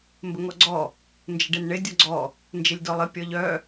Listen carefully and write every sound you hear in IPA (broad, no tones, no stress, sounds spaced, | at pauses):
m b ə ŋ ɔ ɡ͡ǀ ɔ | n d͡ʒ ɪ ɖ e n ɳ ɪ dʲ ɔ ɡ͡ǀ ɔ | n d͡ʒ ɪ lʲ d ɔ lˠ ɪ pʲ ɔ ʎ œ